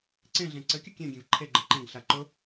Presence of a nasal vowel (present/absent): present